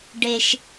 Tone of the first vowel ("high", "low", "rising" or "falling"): low